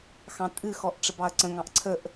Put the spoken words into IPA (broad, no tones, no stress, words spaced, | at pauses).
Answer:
xɑ̃tʼɨ xɔʔʈ͡ʂəbɑɐ̯ǀə̃ ŋɑ̃ʔǀʰəʔ